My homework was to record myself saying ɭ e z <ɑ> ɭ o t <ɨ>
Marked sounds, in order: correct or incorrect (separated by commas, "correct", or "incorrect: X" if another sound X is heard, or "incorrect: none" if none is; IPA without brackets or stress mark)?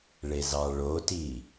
correct, incorrect: i